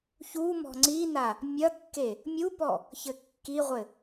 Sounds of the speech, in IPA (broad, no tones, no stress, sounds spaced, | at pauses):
ç u m ɔ̤ ŋ͡ǀ i n a | mʲ ɐ kː e | mʲ u p ɔ | ç ɘ kː i ʁʷ ɘ